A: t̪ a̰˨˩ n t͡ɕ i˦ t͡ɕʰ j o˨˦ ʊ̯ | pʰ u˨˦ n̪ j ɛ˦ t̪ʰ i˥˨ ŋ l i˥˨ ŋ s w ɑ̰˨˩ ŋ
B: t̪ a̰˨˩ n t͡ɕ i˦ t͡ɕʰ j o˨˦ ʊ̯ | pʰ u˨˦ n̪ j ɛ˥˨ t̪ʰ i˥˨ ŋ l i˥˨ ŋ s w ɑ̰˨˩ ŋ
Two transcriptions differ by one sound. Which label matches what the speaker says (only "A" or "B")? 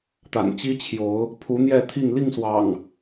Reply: B